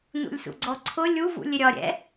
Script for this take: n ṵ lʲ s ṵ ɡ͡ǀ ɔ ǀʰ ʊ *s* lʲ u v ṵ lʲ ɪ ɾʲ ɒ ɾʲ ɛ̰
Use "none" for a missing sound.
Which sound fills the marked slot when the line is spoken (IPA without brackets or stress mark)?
none